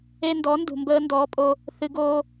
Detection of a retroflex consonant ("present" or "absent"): absent